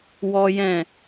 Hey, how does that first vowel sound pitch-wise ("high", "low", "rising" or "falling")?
high